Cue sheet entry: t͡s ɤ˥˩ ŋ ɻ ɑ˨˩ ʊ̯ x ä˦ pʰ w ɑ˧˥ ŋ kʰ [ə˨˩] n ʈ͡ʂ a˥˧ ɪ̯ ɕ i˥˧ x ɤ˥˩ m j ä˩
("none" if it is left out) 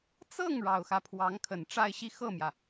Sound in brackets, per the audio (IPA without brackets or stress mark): ə˨˩